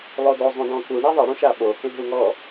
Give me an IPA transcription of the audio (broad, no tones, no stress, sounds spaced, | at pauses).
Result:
lˠ o d o zˤ ũ d ɔ̃ k u ɳ e ðˤ ɛ ɽ ũ ʃ a ɓ o k ẽ ɦ u ŋ ɔ